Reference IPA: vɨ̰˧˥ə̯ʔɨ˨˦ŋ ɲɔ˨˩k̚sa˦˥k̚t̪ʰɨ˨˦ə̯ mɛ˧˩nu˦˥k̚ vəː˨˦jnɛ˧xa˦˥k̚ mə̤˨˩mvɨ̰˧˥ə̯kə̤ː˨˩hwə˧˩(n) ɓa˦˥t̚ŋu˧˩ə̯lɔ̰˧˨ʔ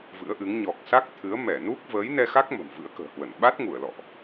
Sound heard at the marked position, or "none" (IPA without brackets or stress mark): n